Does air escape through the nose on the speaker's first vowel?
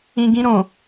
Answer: yes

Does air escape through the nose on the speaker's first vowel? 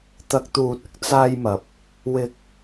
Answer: no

